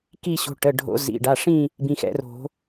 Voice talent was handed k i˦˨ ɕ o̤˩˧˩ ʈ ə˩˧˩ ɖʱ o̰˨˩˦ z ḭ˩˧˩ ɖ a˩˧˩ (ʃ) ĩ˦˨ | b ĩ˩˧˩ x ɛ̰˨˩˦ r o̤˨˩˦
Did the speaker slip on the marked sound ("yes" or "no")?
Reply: yes